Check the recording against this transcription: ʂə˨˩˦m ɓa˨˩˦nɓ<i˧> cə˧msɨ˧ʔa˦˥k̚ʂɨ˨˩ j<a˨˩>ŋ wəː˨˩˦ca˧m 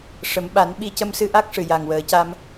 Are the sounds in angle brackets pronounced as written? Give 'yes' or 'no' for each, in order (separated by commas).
no, yes